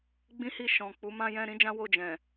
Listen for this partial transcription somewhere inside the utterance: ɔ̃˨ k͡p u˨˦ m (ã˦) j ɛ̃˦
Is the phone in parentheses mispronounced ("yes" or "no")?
no